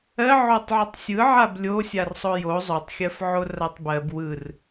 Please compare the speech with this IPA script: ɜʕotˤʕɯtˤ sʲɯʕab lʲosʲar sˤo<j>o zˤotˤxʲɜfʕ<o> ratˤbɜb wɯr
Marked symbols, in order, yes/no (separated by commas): yes, yes